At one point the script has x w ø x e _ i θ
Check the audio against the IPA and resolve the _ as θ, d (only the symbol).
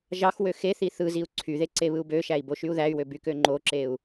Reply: θ